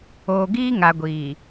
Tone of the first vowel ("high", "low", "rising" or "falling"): low